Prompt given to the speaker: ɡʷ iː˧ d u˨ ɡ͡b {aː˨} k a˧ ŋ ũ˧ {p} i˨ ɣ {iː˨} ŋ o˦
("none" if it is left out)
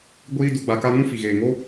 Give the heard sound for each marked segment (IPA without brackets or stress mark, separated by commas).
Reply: a˨, f, eː˨